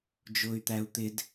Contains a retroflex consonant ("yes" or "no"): no